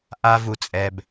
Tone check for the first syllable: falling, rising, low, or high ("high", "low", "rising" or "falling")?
high